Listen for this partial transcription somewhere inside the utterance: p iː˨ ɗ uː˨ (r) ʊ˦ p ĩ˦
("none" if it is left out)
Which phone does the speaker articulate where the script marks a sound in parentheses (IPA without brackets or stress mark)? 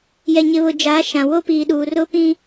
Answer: r